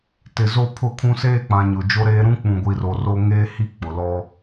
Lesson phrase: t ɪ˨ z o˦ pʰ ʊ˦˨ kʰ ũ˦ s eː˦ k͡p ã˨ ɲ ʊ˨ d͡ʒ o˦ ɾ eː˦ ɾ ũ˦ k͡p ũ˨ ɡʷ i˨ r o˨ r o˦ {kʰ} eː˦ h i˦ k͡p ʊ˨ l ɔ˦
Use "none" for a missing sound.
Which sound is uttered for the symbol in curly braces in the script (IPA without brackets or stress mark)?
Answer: ŋ